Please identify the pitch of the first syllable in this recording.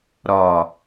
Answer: low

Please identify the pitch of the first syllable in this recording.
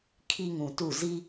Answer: high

